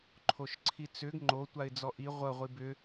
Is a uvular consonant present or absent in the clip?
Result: present